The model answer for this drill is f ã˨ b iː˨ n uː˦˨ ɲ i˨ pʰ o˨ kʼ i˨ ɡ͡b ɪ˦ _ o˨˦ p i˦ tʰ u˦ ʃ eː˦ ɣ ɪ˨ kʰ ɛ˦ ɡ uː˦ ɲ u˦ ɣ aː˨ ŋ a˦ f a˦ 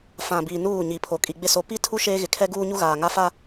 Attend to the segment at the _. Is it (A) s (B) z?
A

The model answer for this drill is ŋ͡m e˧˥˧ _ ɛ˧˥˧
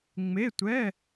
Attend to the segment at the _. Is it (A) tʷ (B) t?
A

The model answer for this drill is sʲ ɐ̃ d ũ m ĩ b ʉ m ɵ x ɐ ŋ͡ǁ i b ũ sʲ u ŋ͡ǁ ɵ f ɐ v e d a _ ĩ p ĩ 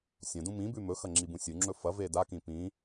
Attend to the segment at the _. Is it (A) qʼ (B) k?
B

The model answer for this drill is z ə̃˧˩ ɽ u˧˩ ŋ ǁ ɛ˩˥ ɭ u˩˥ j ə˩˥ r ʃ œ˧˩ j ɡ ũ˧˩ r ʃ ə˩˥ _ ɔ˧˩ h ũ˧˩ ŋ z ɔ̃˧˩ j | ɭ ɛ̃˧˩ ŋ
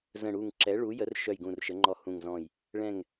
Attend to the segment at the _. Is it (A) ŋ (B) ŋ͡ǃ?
B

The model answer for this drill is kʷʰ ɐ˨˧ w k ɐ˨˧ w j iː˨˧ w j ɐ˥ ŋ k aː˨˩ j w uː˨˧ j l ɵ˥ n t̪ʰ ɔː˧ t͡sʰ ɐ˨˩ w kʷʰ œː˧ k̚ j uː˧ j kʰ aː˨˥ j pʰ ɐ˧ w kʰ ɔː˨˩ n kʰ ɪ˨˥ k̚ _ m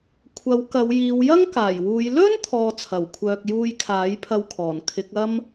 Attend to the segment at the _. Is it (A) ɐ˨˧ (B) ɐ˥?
B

